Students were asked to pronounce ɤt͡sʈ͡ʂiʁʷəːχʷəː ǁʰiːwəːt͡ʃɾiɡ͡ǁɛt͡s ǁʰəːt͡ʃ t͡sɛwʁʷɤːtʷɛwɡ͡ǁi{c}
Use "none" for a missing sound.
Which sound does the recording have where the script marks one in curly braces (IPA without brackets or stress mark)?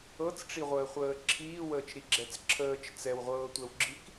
k